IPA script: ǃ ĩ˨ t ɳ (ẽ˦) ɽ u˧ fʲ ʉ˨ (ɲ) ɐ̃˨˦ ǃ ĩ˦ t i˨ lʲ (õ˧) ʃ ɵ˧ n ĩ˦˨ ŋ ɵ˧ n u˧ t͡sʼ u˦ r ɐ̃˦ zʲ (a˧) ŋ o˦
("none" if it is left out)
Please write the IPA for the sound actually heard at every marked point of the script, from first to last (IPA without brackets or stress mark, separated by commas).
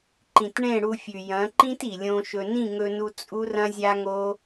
ẽ˦˨, j, õ˧, a˦